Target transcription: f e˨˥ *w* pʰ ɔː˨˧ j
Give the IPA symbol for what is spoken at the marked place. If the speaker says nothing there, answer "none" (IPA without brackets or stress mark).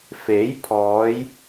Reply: j